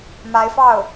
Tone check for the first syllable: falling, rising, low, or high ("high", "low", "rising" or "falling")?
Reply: rising